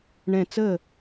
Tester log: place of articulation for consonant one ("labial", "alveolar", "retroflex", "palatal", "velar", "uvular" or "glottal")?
retroflex